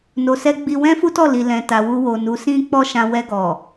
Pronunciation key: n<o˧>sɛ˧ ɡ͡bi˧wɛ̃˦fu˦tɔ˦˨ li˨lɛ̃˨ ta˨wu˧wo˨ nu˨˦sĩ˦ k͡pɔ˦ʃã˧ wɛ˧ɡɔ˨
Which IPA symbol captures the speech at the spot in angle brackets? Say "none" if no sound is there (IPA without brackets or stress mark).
o˨